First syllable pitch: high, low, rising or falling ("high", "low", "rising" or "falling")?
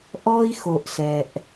high